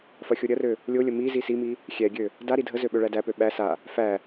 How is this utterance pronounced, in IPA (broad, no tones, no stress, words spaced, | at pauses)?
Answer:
fɐxʲoɾʲɐrø | lʲolʲə mi zisimi | xʲɛɡʲø | da ɾidʱəzø ɓøɭædæpø ɓæ sa | fæ